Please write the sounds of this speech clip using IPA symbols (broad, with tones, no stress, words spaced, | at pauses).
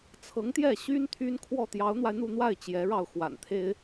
t͡sʰɤ˧˥ŋt̪jɛ˥˩ɕy˥n t̪ʰy˥nkʰwɔ˥˩ t̪jɑ˧˥ʊ̯n̪wa˧ɪ̯n̪u˥˧n̪wa˥˩ɪ̯ t͡ɕjɛ˧˥ɻɑ˥˩ʊ̯ xwa̰˨˩nt̪ʰe˥ɪ̯